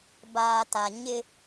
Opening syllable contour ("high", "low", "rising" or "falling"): low